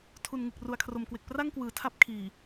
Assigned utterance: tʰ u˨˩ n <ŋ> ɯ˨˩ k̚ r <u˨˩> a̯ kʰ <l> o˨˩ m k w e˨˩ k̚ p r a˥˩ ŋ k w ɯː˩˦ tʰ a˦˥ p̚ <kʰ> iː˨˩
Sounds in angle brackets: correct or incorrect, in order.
correct, correct, incorrect, correct

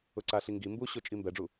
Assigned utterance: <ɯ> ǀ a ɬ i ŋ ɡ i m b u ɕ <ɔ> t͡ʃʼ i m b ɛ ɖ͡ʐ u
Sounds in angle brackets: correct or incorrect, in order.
incorrect, incorrect

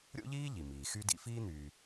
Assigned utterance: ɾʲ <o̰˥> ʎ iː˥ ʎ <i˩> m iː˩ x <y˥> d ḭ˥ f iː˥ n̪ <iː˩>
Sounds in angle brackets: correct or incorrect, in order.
correct, correct, correct, incorrect

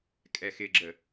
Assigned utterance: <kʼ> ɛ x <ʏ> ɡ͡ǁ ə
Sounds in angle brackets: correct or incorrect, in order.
correct, incorrect

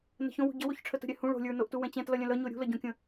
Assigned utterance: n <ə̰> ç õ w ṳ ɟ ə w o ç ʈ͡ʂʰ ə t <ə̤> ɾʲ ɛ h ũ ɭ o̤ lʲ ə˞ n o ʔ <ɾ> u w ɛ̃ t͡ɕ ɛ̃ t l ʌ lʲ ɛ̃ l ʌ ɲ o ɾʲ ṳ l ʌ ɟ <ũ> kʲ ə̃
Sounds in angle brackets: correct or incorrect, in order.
incorrect, correct, incorrect, incorrect

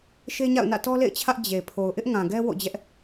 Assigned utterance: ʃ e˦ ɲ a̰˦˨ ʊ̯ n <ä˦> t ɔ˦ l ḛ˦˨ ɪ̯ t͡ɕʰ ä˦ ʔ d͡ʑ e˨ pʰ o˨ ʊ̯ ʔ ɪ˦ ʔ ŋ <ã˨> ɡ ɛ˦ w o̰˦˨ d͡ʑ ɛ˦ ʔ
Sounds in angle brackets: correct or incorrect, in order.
incorrect, correct

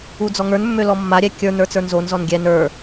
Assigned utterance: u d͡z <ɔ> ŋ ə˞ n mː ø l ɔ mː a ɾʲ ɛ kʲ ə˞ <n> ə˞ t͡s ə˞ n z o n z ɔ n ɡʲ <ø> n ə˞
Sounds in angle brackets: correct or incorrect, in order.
correct, correct, incorrect

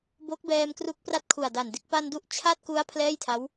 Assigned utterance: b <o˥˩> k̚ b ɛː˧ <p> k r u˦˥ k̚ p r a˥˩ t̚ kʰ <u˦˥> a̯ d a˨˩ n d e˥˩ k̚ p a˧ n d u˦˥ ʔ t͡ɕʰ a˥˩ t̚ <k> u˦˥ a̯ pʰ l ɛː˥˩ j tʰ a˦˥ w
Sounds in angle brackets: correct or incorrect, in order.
incorrect, incorrect, incorrect, correct

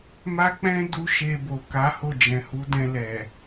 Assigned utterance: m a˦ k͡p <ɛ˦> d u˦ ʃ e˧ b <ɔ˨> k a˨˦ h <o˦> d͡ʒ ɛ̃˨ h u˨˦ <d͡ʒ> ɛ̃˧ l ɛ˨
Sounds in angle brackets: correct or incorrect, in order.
incorrect, incorrect, incorrect, incorrect

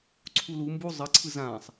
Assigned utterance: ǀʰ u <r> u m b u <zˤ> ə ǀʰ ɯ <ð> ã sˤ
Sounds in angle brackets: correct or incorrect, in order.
incorrect, correct, incorrect

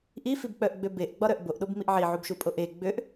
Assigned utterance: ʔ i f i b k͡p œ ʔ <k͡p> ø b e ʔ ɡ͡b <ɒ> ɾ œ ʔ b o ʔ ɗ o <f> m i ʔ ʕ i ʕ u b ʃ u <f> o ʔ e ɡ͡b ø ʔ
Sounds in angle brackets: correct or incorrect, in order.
incorrect, correct, incorrect, incorrect

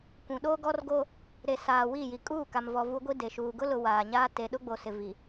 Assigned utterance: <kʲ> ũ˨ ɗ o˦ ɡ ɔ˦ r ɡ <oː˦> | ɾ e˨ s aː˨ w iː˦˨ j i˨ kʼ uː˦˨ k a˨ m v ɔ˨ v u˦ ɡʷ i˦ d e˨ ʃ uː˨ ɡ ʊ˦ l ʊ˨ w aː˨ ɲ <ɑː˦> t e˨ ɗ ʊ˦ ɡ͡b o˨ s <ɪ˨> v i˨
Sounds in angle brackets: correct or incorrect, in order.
incorrect, incorrect, incorrect, correct

